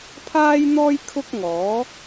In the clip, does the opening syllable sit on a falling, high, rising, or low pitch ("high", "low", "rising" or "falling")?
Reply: high